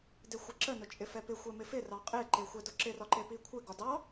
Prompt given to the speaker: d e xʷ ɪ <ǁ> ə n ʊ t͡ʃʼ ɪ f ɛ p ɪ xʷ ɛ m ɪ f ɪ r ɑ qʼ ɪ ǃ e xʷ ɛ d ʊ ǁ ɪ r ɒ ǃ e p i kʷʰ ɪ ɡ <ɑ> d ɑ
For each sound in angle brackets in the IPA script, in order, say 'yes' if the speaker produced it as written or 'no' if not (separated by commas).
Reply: yes, no